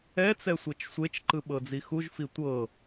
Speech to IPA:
ɛt͡sɛ sʷɤt͡ʃsʷet͡ʃǃɯ ɓɤd͡zixuʒfi tʷɤ

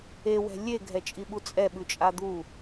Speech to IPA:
ewɛ̤ lʲeɡʱɛt͡ʃʼiɓu t͡sʼɛɓʉt͡ʃʼa d̪u

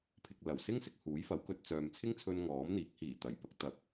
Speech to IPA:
pʰɪ˨k̚lɐ˨˩wsɪ˥ŋsɪ˨k̚ huː˨˥jfɐ˨˥wkɵ˧t̚t͡sœː˨m t͡sʰɪ˥ŋt͡sʰɵ˧n ŋɔː˨˥mn̪iː˨˥k̚ hiː˨˩t̪ɐ˨˩j pɐ˨˥k̚t̪ɐ˨˥k̚

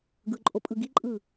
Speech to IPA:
ɡɯǃʼopʼɯ ɡiǃʼɯ

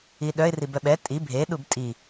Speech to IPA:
iɗœɪ̯ ribœɓɛ tʼi bʱe ɗubtʼi

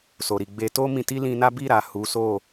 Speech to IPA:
so˨ɾi˨ ɡ͡be˧ to˦mĩ˧ti˦ lĩ˧na˦ bi˦˨ɾa˨ hu˨˦so˦˨

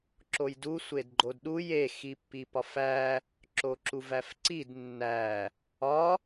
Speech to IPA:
ǁojdu sʷedɡ͡ǃodɗuj e xipːipɒfæ | ǁoǁuvæfǀid nːæ | ɒ

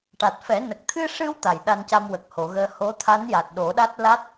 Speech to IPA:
ʈa˨˩t̚fɛ˨˩˦nə˨˩k̚ t̪ʰɨ˧ʂɨ˧w t̪a˨˩jɗa˧nca˧m wə˨˩k̚ho˨˩˨ɣəː˧ ho˧˥ t̪ʰa˧˥nja˨˩t̚ ɗo˨˩˦ɗa˦˥t̚ la˦˥t̚

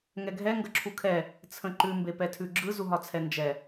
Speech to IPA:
ŋɛɡʱɛ ŋɡəǁʰukʰɛ | t͡sʰə̃ǃʉ mbepɛtʰʉɡ͡ǁɯ zuɦɒt͡sʰɛnd͡ʒɛ

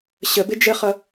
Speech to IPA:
ɕəbɪ d͡ʒəχʌ

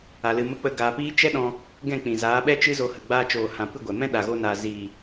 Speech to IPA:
a˧lɨ˧mə˦k͡pə˦ ɡaː˧piː˦ t͡ʃɛ˦ɗɔ̃˧ | ɡɛ̃˦˨k͡pĩ˨zaː˨˦ɓɛ˦ t͡ʃɨ˦zo˧hə˨ ɡ͡baː˧t͡ʃoː˨hã˨ pɨ˦˨ɡʷɛ˨ mɛ̃˦ɗa˨ɣo˧na˨ zi˨

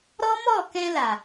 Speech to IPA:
ɾɔ˦mɔ˦˨kɛ̃˧la˨

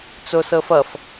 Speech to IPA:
t͡sosɤfʌf

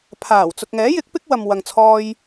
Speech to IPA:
pʰaː˨˩wt͡sʊ˨k̚ŋɛː˨˥jɪ˨˥k̚ pɪ˥k̚wɐ˨mwɐ˨ŋt͡sʰɔː˧j

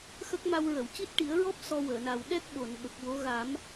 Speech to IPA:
xə˦˥k̚ma˧w ɹə˨˩˨wci˦˥t̚ʈi˨˩˦ə̯ɹɔ˦˥p̚ sɔ˧wəː˨˩˨na˨˩w ɗɛ˦˥k̚ ɓo˨˩˨nɓə˨˩k̚ wo˧˥ ɣa˨˩˦m

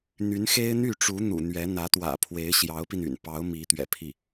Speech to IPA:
n̪y˧˥nxe˥ɪ̯n̪y˥˩ʈ͡ʂu˧˥ n̪ṵ˨˩n̪ɥɛ˧˥ n̪ä˧˥t̪wä̰˨˩pʰwe˧˥ɪ̯ ɕjɑ˧˥ʊ̯pi˧ny̰˨˩npɑ˧˥ʊ̯ mi˧˥t̪ɥɛ̰˨˩pʰi˥˩

